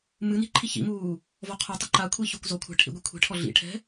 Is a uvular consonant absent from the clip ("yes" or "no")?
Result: no